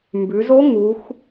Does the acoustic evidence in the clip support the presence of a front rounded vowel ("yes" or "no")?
no